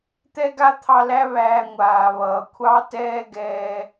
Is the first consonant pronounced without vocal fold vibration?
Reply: yes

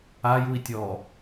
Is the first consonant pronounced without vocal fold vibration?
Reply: no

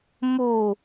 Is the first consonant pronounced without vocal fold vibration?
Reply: no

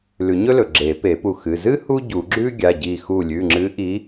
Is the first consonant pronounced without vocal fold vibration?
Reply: no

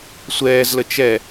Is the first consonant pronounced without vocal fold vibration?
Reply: yes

